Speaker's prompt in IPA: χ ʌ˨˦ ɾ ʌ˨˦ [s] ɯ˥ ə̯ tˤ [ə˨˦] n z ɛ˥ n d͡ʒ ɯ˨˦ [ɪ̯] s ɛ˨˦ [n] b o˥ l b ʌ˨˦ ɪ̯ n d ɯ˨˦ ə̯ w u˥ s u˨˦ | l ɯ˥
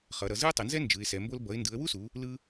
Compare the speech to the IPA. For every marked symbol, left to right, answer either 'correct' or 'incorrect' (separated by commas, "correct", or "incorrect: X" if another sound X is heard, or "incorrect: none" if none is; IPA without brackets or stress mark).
incorrect: z, incorrect: ʌ˨˦, correct, incorrect: m